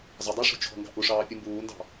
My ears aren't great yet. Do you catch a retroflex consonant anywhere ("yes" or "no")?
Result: yes